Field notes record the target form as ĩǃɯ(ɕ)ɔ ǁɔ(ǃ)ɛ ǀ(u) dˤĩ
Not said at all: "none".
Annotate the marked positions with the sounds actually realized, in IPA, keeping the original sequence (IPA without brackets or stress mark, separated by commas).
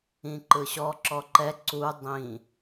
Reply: ɕ, ǃ, u